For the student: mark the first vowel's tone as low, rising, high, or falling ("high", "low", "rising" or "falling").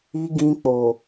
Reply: low